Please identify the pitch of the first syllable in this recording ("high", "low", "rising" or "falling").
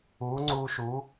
rising